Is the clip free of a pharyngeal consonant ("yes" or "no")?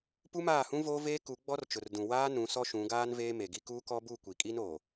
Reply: yes